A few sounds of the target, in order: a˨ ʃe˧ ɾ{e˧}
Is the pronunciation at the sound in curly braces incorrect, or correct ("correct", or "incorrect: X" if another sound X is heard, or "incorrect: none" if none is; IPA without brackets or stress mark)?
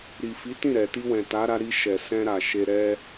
incorrect: ɛ˧